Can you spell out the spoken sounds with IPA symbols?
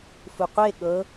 f u qʷ e ɠ ɤ

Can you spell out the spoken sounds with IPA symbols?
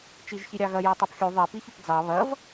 t͡ʃ i ʒ ç i ɾʲ ɑ ɣ ɐ j ɛ tˤ ɛ p xʲ u ðˤ ɛ p i ç ʏ p d͡z ɑ β ɐ v

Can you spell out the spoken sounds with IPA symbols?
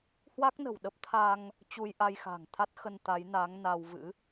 h w a˦˥ k̚ n ə̤˨˩ w ɗ ə˦˥ p̚ t̪ʰ a˧ ŋ | t͡ɕ u˧ j ʔ a˧ j x a̤˨˩ ŋ t̪ʰ a˦˥ t̚ x ə˧ n t̪ a˨˦ j n aː˨˦ ŋ n a˧ w v ɨ̰˧˥

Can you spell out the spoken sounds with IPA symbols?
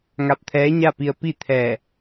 ŋ a˧ p̚ t̪ʰ ɛː˧˥ ɲ a˥˨ p i˧ ə̯ p i˥˨ t̪ʰ ɛː˧˩

